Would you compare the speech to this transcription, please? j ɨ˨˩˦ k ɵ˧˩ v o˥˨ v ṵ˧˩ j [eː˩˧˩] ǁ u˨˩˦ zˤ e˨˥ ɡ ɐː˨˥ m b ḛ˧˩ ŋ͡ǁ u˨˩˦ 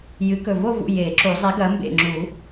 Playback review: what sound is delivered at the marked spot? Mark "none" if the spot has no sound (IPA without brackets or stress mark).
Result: eː˨˩˦